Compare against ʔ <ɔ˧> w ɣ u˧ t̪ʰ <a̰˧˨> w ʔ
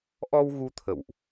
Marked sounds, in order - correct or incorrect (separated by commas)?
correct, incorrect